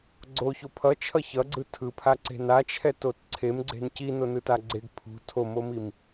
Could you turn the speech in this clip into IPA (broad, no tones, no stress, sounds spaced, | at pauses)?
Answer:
ɡ͡ǀ o ç o pʰ ʌ t͡ʃʰ ʌ ç ʌ ɡ͡ǀ ɯ tʰ ɯ pʰ a ǀ e̤ n a t͡ʃʰ ɛ t o t ǀʰ e m ɡ͡ǀ e̤ n c i n o n ɯ t a ɡ͡ǀ e ɡ pʰ ṳ tʰ o m o m i m